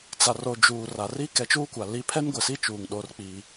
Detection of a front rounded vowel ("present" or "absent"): absent